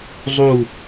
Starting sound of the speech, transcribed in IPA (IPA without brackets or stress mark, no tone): zˤ